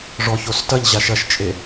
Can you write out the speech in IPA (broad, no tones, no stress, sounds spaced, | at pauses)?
ʐ ɔ ç o s t ɐ ʎ ʑ a ʃ ɐ ʃ t͡ʃʼ e